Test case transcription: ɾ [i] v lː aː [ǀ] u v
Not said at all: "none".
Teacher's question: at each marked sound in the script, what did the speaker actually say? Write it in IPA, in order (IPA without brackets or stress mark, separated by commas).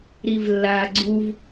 i, ɡ͡ǀ